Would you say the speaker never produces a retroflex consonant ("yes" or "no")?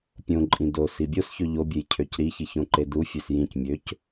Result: yes